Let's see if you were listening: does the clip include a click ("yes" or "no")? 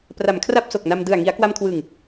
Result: no